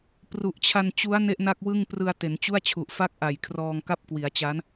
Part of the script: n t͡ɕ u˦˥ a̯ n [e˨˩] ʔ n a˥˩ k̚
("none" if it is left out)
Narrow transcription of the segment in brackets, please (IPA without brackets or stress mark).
e˥˩